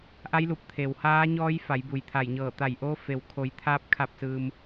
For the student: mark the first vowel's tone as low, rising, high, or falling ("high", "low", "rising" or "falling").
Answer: rising